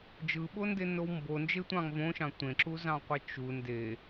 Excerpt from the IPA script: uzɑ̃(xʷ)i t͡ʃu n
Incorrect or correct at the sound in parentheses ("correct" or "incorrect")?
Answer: incorrect